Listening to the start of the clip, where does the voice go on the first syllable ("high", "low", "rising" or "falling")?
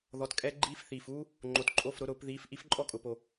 rising